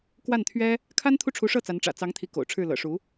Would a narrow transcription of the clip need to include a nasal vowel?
no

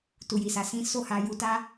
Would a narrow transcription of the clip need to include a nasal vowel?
yes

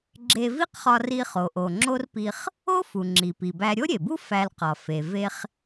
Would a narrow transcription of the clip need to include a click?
yes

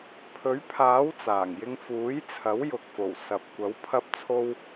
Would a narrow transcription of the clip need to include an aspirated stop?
yes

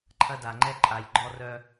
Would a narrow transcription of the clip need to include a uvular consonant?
no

